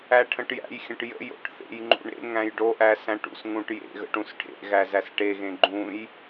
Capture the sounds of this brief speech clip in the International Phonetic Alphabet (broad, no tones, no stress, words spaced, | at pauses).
æʈʰə̃ʈjæ̰jxʲə̃ʈ jə̰jo̰ʈ θḛjŋ͡ǃṵ ɳḛŋ æ̃jɖoʔæ sæ̃ʈṵsŋũʈ jḛɣə̰ ʈũsʈʰḛɣæ zæsʈeɣẽ ɡ͡ǃũj